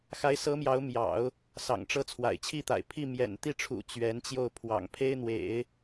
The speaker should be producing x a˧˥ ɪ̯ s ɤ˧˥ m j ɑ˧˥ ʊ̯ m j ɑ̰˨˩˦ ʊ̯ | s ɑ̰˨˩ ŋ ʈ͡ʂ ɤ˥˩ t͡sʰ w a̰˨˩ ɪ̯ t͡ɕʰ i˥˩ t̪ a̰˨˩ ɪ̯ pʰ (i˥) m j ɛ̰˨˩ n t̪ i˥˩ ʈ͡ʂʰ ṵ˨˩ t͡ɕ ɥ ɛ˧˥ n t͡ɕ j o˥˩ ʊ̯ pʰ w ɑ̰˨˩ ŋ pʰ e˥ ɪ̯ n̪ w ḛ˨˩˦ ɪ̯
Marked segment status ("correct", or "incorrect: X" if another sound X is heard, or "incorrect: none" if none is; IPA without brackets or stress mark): incorrect: i˥˩